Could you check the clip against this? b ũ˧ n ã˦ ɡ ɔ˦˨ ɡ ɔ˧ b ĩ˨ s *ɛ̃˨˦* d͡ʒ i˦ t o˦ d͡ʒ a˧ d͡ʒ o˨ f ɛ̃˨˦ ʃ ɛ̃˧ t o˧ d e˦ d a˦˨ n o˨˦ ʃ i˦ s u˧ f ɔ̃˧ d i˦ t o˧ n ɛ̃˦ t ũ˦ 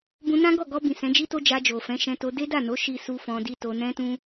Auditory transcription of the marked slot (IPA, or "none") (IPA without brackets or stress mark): ɛ̃˨˦